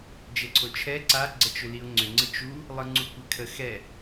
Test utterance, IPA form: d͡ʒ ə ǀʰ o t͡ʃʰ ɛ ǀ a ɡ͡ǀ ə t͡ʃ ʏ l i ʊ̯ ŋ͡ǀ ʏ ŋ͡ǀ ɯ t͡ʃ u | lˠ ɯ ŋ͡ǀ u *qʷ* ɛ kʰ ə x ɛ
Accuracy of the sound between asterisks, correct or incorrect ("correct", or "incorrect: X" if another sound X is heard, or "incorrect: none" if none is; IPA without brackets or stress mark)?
incorrect: kʷ